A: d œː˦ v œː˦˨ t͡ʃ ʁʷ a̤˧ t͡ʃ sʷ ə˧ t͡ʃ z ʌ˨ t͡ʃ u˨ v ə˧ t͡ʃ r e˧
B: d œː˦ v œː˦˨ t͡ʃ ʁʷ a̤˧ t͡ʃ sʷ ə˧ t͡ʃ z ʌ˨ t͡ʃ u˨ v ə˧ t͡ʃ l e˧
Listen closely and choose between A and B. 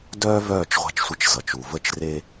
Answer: A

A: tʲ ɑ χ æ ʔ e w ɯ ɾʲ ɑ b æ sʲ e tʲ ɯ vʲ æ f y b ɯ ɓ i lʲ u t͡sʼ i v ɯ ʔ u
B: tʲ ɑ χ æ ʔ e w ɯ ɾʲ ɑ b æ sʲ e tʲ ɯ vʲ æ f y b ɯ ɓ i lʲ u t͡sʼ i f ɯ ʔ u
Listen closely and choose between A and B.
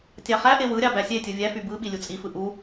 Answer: B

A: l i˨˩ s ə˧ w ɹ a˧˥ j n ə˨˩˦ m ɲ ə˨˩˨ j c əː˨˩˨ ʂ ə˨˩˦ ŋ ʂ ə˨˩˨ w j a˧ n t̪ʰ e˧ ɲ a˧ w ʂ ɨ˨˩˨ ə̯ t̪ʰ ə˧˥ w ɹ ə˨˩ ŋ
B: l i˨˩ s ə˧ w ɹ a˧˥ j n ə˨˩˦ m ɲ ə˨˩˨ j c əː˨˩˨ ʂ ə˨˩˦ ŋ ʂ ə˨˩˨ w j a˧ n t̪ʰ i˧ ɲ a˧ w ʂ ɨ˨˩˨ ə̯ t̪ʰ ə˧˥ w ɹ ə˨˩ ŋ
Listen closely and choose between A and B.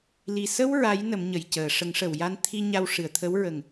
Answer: B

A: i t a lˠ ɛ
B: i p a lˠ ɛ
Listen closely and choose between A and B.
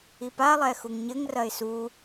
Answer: B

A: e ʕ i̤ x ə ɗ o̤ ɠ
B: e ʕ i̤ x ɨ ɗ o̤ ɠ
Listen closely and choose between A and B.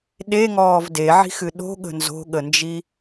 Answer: B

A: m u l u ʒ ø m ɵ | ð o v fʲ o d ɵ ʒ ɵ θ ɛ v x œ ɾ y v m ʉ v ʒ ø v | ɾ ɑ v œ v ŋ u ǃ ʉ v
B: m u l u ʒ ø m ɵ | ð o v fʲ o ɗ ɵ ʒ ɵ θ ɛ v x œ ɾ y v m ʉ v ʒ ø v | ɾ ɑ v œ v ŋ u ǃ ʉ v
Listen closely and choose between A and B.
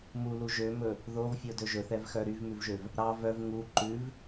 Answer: A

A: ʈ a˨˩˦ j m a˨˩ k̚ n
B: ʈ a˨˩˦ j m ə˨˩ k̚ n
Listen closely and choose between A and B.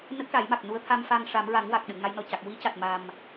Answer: A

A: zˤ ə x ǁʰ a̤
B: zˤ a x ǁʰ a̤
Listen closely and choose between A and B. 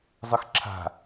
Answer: A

